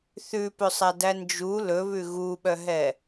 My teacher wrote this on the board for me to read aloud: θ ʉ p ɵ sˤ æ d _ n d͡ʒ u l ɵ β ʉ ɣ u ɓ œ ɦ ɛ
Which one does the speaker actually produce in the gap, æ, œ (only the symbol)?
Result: æ